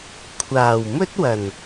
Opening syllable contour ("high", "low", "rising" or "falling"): low